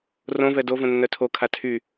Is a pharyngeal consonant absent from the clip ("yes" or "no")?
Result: yes